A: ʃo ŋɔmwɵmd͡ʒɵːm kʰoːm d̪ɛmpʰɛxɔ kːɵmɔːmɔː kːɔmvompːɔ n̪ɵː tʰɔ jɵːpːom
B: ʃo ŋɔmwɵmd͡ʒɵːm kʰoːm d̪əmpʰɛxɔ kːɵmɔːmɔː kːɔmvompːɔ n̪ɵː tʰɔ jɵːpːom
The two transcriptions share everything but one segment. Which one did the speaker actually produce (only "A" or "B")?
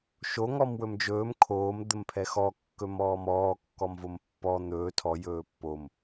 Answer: B